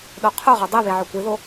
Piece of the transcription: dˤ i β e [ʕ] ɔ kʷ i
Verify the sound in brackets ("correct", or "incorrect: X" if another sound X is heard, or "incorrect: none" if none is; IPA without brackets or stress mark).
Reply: correct